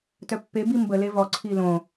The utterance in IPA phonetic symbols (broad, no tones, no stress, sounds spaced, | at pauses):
t œ pː e b i m b ə l e v ɔ ǀʰ i l õ